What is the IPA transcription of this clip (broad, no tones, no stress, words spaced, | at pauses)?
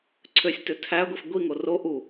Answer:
ǀʰøsʲtø tʰæɡʷif ɡʷiŋo ro ʔu